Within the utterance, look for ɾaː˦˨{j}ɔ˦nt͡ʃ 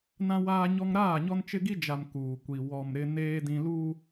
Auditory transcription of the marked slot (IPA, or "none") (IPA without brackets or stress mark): ɲ